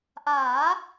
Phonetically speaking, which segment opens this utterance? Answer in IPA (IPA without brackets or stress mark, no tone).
ʔ